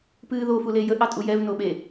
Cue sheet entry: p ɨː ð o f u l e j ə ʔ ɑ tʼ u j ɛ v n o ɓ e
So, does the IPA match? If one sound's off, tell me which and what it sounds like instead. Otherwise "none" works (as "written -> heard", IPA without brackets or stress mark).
none